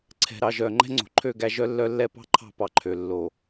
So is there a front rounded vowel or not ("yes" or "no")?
yes